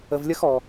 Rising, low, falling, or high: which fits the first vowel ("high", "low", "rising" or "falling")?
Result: low